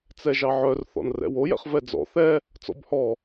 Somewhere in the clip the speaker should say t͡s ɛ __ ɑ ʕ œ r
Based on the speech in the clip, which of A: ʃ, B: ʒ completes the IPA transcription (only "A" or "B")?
B